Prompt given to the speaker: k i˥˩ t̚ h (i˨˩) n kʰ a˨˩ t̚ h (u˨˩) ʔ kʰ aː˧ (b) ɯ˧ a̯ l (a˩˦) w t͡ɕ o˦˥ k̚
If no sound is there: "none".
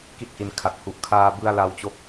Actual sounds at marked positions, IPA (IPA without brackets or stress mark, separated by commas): i˧, u˨˩, b, a˦˥